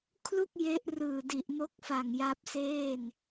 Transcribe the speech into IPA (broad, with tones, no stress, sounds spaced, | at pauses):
kʰ l u˥˩ k̚ j e˦˥ ʔ r ɯː˨˩ d i˨˩ ʔ m o˦˥ k̚ f a˨˩ ŋ j a˦˥ p̚ s eː˥˩ n